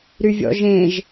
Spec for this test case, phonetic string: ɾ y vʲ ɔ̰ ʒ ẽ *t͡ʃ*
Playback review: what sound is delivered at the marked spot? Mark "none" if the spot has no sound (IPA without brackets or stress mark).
ʒ